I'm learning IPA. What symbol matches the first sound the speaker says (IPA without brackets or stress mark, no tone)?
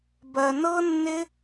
b